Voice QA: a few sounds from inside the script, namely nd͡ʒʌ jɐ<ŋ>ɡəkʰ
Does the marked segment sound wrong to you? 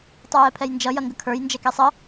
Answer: no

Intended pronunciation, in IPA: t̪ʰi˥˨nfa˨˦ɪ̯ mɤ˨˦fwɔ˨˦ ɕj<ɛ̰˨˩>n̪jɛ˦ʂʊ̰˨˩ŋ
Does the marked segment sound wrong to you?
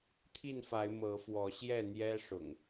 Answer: yes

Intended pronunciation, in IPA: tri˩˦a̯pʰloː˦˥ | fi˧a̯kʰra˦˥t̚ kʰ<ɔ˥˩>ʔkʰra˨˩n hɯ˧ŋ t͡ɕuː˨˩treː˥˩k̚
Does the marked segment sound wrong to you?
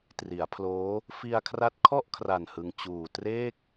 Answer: no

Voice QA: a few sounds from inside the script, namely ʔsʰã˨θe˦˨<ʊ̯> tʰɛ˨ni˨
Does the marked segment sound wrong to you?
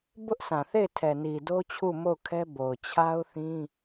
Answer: yes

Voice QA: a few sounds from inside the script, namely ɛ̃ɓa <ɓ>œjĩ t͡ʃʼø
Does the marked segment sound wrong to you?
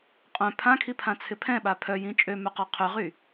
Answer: yes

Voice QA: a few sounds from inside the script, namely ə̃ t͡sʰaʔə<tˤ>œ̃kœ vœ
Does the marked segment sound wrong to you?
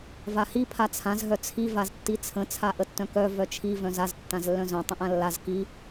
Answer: yes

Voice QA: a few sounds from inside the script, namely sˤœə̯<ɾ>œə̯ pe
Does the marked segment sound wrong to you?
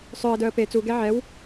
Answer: yes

